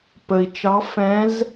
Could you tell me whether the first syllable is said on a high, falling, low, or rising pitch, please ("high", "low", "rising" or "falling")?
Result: low